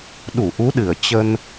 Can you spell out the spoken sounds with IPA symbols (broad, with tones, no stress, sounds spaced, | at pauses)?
ɗ u˧˩ ʔ u˨˦ ɗ ɨ˧˩ ə̯ t͡ɕ ə˧ n